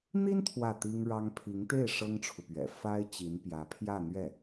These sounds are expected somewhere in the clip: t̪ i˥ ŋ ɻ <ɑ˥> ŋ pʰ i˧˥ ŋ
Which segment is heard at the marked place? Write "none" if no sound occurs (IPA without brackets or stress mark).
ɑ˥